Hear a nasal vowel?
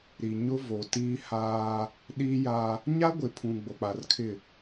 yes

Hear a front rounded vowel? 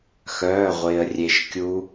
yes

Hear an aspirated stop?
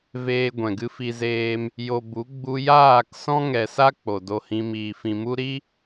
no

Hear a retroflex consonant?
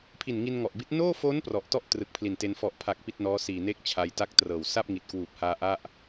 no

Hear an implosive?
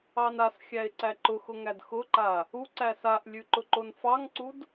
no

